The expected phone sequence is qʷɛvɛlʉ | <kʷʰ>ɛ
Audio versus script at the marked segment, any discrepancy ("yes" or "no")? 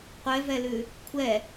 no